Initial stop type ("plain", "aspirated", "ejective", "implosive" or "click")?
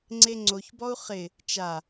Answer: click